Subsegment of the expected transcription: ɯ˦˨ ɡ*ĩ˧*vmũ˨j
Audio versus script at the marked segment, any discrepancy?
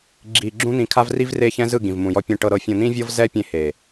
yes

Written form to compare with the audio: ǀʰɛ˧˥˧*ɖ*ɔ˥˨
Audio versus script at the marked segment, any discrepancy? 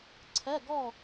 yes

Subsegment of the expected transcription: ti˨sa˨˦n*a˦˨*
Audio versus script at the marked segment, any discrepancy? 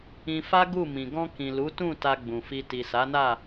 no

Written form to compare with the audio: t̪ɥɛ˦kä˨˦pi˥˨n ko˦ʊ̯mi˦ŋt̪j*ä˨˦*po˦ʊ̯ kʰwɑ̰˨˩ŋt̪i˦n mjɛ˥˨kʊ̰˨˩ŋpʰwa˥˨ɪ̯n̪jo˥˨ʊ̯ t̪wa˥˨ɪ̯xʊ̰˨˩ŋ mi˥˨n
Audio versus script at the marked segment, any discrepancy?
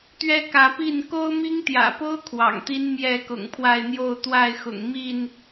yes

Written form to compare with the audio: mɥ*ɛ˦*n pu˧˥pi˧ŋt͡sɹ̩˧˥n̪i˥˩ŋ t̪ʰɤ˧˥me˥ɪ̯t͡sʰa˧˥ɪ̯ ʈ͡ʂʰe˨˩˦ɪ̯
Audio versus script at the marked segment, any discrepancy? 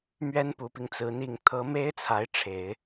yes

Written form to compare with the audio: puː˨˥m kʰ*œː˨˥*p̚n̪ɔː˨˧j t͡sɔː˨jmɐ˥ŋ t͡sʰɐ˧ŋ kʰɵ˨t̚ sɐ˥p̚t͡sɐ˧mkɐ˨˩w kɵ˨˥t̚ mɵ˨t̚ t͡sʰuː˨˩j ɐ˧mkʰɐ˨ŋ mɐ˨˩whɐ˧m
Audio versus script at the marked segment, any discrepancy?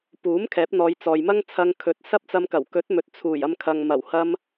yes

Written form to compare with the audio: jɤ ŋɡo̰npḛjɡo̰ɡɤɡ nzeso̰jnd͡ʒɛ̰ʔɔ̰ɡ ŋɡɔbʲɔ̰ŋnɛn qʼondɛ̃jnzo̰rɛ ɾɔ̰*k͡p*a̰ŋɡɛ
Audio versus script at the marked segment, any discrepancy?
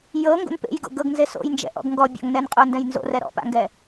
yes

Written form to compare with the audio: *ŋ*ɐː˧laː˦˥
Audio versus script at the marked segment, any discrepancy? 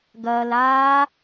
yes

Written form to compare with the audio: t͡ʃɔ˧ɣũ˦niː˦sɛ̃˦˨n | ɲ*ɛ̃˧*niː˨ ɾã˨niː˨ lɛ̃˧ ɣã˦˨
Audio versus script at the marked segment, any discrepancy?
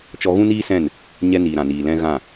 yes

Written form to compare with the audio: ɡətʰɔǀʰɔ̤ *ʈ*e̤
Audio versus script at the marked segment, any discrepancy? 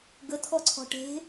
no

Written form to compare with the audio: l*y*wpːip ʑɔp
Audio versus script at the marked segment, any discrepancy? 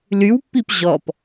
no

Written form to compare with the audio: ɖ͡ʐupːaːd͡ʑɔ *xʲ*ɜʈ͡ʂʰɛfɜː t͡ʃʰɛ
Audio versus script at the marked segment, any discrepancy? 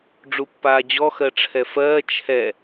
yes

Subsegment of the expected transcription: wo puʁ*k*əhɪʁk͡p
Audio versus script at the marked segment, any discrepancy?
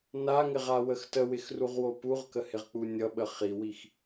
no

